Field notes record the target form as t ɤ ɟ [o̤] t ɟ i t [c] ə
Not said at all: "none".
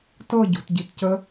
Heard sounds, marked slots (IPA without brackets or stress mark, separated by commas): o̤, c